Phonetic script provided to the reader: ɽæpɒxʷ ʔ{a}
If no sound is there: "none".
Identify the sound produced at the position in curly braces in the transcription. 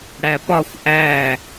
æ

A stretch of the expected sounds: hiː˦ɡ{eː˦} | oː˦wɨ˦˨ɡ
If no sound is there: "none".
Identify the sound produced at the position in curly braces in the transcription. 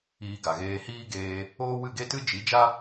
eː˧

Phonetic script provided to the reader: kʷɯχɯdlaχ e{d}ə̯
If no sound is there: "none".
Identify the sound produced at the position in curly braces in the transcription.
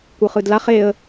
none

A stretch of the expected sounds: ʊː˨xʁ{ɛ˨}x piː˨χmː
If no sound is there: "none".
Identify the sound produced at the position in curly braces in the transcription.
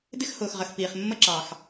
ə˨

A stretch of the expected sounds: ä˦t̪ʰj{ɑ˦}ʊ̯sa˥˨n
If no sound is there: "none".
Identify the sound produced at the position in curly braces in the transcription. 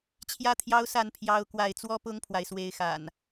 ɑ˦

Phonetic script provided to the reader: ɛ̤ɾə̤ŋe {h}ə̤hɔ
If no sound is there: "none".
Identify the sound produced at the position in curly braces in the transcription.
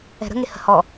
h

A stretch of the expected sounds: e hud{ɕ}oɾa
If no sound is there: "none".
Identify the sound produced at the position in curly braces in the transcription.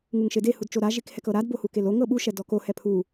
t͡ʃ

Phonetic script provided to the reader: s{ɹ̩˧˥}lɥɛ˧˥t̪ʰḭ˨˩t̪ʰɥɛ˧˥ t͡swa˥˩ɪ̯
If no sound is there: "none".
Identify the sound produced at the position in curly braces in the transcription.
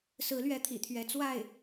ɹ̩˧˥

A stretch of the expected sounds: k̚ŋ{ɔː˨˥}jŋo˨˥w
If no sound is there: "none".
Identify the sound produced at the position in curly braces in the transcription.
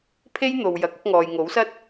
ɔː˨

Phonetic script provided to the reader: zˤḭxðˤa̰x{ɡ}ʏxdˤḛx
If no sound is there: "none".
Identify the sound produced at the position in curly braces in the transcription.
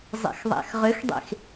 ʁ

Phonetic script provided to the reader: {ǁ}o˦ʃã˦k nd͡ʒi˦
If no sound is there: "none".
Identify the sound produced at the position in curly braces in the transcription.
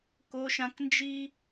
k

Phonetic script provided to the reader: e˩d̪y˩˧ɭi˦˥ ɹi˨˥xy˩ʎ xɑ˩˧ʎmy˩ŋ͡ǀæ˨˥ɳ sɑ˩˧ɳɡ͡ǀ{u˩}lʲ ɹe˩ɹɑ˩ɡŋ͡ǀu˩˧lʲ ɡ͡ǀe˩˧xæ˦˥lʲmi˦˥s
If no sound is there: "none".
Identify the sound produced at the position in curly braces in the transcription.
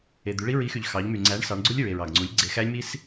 u˦˥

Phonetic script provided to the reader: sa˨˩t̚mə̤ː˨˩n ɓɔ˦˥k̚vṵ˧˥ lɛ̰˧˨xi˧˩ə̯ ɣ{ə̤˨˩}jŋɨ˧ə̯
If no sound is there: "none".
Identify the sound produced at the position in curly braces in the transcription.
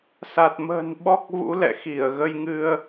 ə˧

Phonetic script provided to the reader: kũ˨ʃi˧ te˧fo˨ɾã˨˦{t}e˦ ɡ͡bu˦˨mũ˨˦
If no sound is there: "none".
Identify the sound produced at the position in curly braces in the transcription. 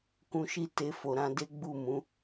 d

